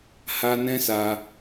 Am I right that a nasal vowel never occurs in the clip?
no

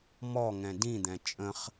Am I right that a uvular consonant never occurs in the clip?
no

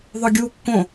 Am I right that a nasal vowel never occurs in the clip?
no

